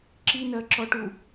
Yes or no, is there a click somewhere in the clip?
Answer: yes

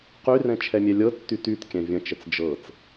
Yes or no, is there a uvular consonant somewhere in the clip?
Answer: yes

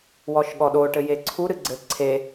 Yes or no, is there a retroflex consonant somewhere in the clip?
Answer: yes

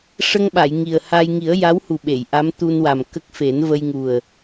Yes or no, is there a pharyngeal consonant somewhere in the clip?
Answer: no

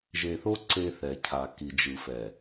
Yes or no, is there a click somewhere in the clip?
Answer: yes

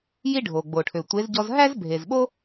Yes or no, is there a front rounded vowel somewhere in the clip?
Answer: yes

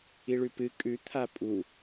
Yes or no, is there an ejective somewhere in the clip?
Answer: yes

